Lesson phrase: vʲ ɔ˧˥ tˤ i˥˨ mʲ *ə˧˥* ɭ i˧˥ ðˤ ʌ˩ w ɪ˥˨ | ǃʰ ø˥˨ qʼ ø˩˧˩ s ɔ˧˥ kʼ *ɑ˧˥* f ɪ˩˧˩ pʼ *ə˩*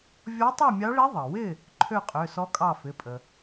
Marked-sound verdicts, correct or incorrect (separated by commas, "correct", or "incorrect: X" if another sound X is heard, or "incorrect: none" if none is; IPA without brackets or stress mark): incorrect: ɑ˧˥, incorrect: ɑ˥˨, correct